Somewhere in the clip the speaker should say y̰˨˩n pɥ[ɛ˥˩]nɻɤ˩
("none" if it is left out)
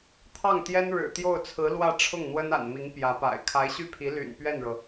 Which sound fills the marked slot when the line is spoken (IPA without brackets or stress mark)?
ɛ˥˩